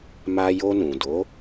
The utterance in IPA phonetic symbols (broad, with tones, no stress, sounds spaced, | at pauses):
m a˧ j o˧ n ũ˨ d o˨˦